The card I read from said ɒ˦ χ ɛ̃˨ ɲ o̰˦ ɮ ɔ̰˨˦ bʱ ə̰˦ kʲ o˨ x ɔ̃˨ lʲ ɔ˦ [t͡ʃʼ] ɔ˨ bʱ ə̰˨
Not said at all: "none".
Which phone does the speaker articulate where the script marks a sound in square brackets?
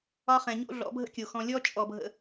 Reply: t͡ʃʼ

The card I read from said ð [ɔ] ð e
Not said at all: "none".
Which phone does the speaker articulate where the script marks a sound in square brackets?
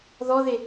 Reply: ɔ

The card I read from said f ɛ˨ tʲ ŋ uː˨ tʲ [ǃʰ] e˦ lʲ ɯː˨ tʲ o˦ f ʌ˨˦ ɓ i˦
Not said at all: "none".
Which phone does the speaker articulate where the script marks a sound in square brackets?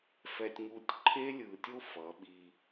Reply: ǃʰ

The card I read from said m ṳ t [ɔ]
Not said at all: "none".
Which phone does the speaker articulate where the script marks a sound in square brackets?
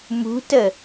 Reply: ə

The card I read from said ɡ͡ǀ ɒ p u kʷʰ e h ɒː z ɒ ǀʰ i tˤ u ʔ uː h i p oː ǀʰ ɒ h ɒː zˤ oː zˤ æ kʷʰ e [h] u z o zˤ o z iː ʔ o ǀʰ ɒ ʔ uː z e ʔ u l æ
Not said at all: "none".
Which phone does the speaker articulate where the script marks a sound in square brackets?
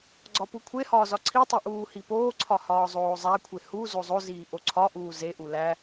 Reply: h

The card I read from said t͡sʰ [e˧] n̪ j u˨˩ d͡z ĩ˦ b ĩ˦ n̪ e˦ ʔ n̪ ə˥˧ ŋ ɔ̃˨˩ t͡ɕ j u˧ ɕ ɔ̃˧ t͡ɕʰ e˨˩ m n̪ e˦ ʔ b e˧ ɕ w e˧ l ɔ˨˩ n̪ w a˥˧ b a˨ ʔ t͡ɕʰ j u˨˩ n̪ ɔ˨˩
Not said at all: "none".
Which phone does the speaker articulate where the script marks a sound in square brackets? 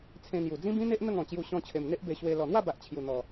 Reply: ẽ˧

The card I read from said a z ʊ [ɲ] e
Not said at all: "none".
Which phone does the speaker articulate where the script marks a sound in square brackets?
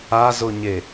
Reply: ɲ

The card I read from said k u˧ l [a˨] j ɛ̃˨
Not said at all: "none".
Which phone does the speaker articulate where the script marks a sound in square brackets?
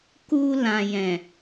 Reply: ã˨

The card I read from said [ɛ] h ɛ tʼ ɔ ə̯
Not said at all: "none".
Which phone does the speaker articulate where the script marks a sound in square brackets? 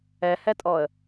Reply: ɛ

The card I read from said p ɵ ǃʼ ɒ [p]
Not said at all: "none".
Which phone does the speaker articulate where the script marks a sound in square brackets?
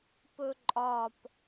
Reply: p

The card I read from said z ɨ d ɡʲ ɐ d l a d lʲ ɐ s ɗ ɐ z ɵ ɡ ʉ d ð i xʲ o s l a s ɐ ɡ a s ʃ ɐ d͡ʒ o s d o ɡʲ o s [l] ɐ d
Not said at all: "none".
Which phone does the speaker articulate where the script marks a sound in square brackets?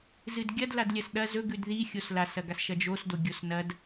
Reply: n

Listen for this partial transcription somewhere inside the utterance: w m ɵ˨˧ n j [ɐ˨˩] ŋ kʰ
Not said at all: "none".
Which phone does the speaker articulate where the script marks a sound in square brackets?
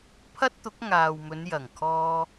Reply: ɐ˨˩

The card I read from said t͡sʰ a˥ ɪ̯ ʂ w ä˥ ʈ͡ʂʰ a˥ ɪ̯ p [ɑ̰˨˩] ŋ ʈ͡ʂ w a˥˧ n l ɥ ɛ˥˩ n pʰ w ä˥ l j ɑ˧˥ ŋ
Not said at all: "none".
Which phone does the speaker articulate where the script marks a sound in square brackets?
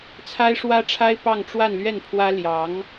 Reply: ɑ˥˧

